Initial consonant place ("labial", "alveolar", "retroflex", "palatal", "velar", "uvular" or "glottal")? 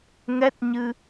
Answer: velar